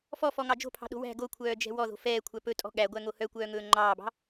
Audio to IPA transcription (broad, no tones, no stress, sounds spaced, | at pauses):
f ɔ f ɔ ŋ ɑ d͡ʒ o̤ pʰ ɑ̤ ɗ o̤ w æ̤ ɡ o kʷʰ œː d͡ʒ ɛ̤ w ɔ ð o̤ f ɛː kʷʰ æ p ɵ tʼ ɔ̤ ɠ æ ɡʷ æ ŋ o h œ kʷ œː ŋ ɵː ŋ͡ǃ ɑː b ɑ̤